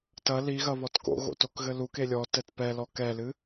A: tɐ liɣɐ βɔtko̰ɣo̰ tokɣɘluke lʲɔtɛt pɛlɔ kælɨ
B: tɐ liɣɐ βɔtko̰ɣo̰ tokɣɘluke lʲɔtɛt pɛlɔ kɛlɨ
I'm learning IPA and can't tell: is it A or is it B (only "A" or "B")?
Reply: B